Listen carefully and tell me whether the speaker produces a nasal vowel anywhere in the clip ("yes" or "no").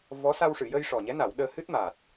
no